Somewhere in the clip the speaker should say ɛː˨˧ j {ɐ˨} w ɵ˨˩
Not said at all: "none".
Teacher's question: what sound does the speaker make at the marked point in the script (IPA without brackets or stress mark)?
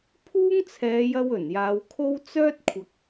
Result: ɐ˧